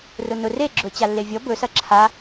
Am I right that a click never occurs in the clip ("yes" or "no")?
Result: no